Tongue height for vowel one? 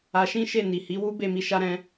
low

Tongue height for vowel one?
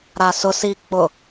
low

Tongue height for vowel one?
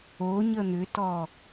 mid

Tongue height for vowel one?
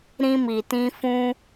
high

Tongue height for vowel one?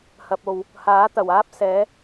low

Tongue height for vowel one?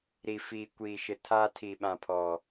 high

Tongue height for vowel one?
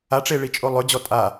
low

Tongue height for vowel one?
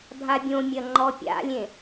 low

